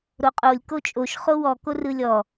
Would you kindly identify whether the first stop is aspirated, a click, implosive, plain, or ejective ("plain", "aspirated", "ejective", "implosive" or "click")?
ejective